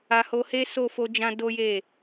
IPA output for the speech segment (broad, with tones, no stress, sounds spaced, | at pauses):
a˧ h o˧ h e˦ s o˦˨ f o˧ d͡ʒ ã˧ d o˦ j e˦˨